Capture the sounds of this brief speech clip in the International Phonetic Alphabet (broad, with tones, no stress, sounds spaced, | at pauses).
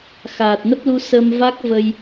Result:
x aː˨˩ t̚ n ə˦˥ p̚ l u˧ s ə˧ m v a˦˥ k̚ v ə˧ j